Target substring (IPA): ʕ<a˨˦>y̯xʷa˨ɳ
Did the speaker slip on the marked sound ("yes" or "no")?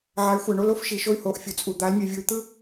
no